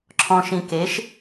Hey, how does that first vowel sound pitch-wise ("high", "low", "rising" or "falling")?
low